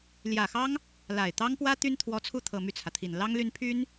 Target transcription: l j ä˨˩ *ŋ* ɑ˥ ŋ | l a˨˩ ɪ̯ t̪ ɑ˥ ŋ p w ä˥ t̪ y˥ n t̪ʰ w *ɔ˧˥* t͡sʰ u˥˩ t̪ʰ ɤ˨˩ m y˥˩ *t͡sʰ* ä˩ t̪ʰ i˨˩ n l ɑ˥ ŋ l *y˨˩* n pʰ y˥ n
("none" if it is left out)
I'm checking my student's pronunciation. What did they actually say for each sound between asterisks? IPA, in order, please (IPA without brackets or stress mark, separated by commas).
x, ɔ˧˥, t͡sʰ, y˥